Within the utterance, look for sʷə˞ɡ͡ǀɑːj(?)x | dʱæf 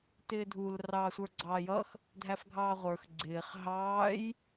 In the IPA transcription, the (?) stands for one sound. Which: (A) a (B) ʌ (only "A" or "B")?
B